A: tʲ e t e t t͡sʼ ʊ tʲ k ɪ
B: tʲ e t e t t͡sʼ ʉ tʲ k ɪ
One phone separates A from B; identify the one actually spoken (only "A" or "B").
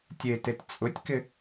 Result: A